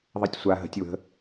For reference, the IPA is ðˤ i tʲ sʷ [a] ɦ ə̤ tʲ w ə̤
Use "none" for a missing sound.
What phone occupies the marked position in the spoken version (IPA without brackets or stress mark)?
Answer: a